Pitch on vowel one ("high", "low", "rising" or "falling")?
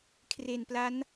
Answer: low